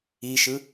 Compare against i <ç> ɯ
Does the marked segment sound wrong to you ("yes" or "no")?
yes